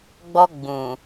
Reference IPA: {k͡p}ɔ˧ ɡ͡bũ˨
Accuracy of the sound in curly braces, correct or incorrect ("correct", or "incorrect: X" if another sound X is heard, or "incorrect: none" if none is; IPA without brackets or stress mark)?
incorrect: ɡ͡b